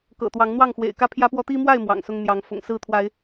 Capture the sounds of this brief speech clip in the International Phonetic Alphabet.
k ɤ̰˨˩ t̪ w ɑ˨˦ ŋ n̪ w ɑ˥˨ ŋ x w ḛ˨˩ ɪ̯ k ä˥˨ pʰ j ä˦ p w ɔ˦ t̪ i˦ m w a˥˨ ɪ̯ m w ɑ̰˨˩ ŋ s ʊ˦ ŋ n̪ j ɑ˨˦ ŋ f ʊ̰˨˩ ŋ s ɹ̩˥˨ t̪ʰ w a˨˦ ɪ̯

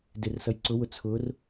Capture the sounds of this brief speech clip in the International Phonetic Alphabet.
d ɪ r s ʌ j ǀ ʊ w ʊ t͡sʰ ʊ r

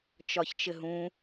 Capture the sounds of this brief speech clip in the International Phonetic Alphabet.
t͡ʃ ɒ ç t͡ʃ ɘ ɦ ũ

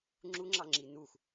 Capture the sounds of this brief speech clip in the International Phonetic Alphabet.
ŋ͡ǁ u ŋ͡ǁ ɑ ŋ͡ǁ i n u x

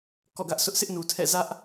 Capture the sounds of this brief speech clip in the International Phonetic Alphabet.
k ɔ̰˦˨ ɡ ä˦ ʔ sʰ ʊ˦ ʔ sʰ ɪ˦ ʔ n u˨ tʰ ɛ̰˦˨ z ä˦ ʔ

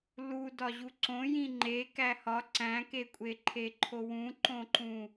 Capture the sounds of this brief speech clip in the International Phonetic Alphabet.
l u d ɒ ʑ u ǀ õ j ĩ ŋ͡ǃ e k æ h ɒ ǀ æ̃ k e kʷʼ e ǃʰ e ǃʰ o w ũ ǃ õ ǃ ũ

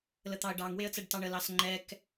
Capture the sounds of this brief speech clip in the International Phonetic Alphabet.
l ə t̪ ɑ ə̯ ɖ ɑ ŋ w e ə̯ t͡s ɛ ɖ t ɑ ɳ ə l ɑ s ŋ͡ǃ ɛ k

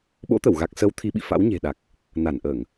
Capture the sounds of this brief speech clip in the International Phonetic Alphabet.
ɓ o̰˧˥ t̪ ə˧˩ w ɣ a˨˩ k̚ s ə˨˦ w t̪ʰ i˧ ɓ ḭ˧˨ f a̰˧˥ w ɲ e̤˨˩ ɗ a˨˩ k̚ | n a˧˩ n ʔ əː˧˩˨ ŋ

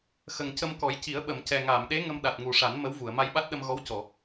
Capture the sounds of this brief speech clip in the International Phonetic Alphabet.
x ə˨˩ ŋ c ə˧ m k ɔ˨˩˦ j c i˨˩˦ ə̯ ɓ ə˨˩˨ m c ɛ˨˩ ŋ aː˨˩˨ m ɗ e˧˥ ŋ ə˧ m ɗ a˨˩ t̚ ŋ u˨˩ ʂ a˨˩˦ n m ə˧˥ w v u˨˩˨ ə̯ m a˧ j ɓ a˦˥ t̚ ɗ ə˧ m ɣ ɔ˧˥ w c ɔ˨˩˨

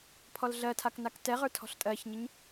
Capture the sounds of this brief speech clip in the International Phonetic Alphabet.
pʰ ɔ l ɮ ɜ tʰ a k n a k t ɛ ʁ ə˞ tʰ ɔ̤ ɬ tʼ ɜ ç ɲ e ɲ

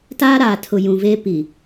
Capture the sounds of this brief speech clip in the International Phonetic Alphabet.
t aː˦ ɾ aː˨ tʰ ʊ˨ j ũ˨ v eː˦ p i˨

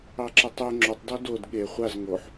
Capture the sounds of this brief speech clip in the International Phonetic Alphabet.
ɑ ǁ ɐ tˤ ə˞ ŋ͡ǁ o tˤ d ɔ d o d ɠ e χʷ a z ŋ o ħ

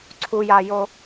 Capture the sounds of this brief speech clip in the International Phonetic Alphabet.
ǀʰ u j a j o

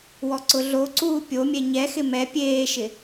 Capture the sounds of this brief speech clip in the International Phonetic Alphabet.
w ɔ ǀ ʊ ɮ o ǀ uː pʲ o mʲ ɛ ɲ ɛ x ɪ m ɛ pʲ eː ʃ ɪ

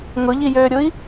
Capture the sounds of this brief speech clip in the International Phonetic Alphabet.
ŋ ʊ ʎ i j øː ɾʲ ʊ i̯

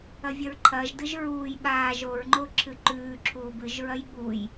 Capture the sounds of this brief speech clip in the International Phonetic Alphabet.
ɐ vʲ ɐ ɹ ǃʰ ɐː ʒ d ɨ ʒ ɹ uː j ɓ aː ʒ o ɹ ŋ͡ǃ o ǁʰ ɨ ǃ ʉː ǁʰ uː b ɨ ʒ ɹ ɐ j ɠ u j

